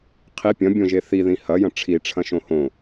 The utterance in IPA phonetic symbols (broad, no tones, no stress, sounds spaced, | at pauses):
qʰ i pʲ ɐ̃ bʲ õ ʒ e θ i ð ĩ h ɐ j ɐ̃ ʈ͡ʂʰ i ʈ͡ʂʰ ɐ̃ ʃ õ h õ